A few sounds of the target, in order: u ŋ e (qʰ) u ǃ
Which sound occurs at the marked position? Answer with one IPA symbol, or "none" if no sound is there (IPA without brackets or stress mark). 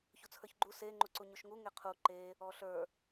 qʰ